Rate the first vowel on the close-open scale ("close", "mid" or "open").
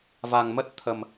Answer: open